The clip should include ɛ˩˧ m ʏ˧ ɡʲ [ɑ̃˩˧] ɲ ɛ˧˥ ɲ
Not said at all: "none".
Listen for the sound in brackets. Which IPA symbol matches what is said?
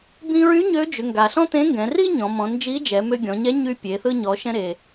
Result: ɔ̃˩˧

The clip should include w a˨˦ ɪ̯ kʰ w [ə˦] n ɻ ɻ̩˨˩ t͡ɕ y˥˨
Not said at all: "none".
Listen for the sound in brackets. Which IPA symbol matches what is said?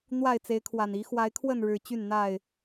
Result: ə˥˨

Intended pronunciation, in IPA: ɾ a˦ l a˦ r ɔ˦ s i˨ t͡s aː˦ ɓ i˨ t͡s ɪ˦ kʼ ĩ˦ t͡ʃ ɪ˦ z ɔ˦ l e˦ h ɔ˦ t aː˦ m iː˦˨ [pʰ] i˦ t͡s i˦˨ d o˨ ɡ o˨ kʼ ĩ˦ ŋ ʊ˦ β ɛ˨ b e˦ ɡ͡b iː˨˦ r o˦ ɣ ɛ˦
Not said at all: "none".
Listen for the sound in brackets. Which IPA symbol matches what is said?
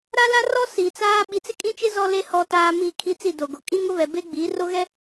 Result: kʰ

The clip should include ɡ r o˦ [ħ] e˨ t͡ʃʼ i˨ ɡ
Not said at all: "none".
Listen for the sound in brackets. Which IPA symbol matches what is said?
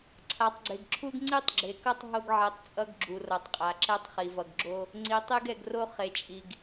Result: χ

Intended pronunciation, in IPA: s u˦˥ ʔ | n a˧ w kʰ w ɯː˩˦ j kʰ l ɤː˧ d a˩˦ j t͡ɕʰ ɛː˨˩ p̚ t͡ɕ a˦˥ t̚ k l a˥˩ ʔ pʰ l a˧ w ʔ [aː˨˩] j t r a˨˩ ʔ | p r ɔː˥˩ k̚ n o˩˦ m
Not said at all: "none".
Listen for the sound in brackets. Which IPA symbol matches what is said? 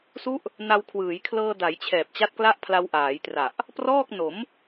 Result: aː˩˦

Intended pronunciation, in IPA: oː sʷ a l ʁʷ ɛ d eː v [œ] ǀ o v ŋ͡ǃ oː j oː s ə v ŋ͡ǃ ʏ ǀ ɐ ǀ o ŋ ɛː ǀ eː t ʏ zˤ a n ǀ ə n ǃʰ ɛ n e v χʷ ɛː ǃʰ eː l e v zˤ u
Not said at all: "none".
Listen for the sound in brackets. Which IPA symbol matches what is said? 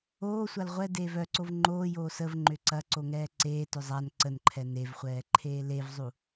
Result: œ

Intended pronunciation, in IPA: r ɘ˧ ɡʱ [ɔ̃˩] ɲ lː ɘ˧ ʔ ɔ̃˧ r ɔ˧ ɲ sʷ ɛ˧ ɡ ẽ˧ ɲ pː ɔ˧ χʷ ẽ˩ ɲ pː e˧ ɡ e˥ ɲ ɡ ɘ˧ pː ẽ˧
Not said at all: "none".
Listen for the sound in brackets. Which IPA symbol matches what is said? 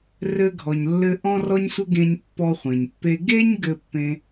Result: ɔ˩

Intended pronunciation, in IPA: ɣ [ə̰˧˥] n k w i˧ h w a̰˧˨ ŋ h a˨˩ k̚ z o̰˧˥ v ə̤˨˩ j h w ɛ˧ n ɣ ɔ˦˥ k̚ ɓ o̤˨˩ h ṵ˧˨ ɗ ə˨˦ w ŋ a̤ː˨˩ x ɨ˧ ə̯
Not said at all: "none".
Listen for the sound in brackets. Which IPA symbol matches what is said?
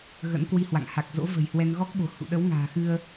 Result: ə̰˧˥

